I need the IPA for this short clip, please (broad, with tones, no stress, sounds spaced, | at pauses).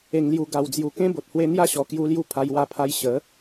e˨˩ ŋ l j u˨˩ ɡ a˨˩ w d͡z j u˨˩ k ẽ˦ b o˨ t̚ h w e˧ n̪ j a˥˧ ɕ ɔ˨˩ k j u˧ l j u˧ pʰ a˧ j w a˧ pʰ a˧ j ɕ ə˨˦